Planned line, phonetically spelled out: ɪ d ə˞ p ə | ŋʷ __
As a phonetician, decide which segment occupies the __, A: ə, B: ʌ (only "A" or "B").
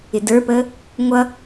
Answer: B